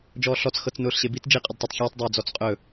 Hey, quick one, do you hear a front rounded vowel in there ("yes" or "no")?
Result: no